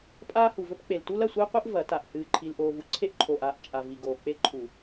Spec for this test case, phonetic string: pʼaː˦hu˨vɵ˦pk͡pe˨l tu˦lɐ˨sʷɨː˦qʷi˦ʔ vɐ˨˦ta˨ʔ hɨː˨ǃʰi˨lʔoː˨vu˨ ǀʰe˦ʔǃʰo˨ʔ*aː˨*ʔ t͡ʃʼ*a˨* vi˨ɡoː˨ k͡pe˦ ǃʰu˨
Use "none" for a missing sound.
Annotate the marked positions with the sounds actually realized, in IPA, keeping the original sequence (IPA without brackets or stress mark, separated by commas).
aː˨, a˨